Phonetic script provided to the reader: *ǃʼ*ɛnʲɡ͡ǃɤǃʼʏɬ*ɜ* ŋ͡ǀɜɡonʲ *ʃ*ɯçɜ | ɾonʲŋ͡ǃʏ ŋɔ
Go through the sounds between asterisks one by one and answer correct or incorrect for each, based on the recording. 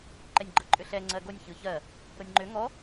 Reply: incorrect, incorrect, incorrect

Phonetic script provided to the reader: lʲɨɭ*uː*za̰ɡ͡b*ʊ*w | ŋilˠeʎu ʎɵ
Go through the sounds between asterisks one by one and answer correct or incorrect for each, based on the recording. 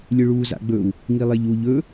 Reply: correct, incorrect

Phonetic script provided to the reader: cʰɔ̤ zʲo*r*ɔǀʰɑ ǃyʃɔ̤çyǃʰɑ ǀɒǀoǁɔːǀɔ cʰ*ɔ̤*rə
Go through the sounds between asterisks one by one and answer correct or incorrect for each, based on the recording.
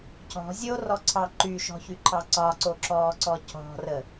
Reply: correct, correct

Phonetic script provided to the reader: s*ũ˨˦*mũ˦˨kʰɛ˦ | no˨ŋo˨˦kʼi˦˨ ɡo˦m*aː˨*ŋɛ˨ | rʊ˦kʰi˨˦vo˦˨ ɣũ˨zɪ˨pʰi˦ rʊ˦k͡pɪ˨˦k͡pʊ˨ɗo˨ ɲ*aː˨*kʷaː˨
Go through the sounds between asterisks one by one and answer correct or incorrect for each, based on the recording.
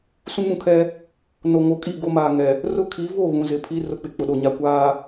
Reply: incorrect, correct, incorrect

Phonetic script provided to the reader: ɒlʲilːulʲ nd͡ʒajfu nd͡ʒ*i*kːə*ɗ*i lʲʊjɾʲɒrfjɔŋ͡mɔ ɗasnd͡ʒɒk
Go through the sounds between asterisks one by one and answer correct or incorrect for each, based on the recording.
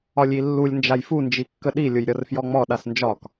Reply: correct, correct

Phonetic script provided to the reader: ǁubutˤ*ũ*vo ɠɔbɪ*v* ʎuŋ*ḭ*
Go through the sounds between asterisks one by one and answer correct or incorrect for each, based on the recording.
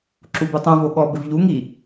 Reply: correct, correct, incorrect

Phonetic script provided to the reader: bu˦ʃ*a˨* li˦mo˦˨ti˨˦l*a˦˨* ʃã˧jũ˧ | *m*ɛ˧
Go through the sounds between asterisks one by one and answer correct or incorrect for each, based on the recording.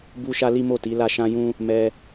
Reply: incorrect, correct, correct

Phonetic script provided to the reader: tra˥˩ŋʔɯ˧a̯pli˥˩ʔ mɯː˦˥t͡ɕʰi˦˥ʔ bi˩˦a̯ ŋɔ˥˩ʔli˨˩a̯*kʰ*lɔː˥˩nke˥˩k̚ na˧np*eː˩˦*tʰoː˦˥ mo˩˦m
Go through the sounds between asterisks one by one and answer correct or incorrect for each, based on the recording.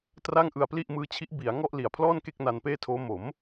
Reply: incorrect, incorrect

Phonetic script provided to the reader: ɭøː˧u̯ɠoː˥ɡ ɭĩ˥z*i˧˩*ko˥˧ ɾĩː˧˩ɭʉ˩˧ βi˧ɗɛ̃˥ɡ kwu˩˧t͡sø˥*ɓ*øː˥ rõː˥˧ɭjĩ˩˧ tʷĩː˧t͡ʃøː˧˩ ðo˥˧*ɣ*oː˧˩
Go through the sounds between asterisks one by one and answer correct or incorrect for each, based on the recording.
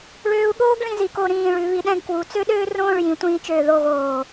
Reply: correct, incorrect, correct

